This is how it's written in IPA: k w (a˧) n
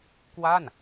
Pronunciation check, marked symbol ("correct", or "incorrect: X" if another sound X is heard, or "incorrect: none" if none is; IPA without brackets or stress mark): incorrect: a˥˩